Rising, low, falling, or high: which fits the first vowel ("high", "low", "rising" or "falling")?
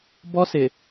high